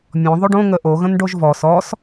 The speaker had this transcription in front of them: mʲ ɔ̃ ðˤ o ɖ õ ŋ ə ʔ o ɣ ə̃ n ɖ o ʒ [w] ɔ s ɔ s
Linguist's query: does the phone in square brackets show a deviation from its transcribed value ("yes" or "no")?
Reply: yes